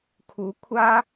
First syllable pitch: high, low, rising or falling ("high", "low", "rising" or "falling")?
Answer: rising